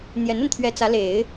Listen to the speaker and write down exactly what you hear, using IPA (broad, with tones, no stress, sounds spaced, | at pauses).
n̪ j ɛ˧˥ n ə˧ n t̪ʰ ɥ ɛ˧˥ t͡s ä˧˥ l e˨˩˦ ɪ̯